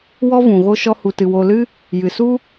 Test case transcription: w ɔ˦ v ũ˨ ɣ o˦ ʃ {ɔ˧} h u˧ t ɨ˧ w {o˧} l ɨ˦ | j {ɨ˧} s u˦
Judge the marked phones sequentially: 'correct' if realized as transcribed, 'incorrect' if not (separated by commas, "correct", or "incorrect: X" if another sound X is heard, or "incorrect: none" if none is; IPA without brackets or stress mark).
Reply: incorrect: ɔ˦, correct, incorrect: ɨ˨